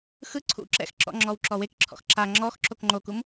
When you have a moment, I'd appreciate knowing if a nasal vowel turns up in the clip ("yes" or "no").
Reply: no